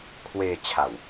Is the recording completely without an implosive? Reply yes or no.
yes